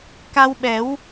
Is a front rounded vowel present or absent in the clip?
absent